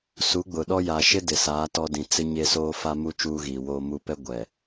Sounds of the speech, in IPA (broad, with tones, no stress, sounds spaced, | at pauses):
s u˨˦ ɡ͡b ʊ˨ ɗ ɔ˦ j a˨ ʃ ɪ˦ d ɪ˨ s aː˨˦ t ɔ˦ d ĩ˨ t͡s ɪ˦ ɲ e˦ s oː˦ f a˦ m u˦ t͡ʃ uː˦ ɣ iː˨ w oː˦ m u˦ p ɛ˦ ɡʷ ɛ˨